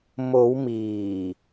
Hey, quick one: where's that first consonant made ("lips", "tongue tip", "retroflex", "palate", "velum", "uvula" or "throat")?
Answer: lips